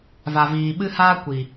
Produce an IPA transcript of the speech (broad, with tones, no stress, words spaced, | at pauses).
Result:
va˨viː˨ ɓɨ˦haː˦ kʷi˨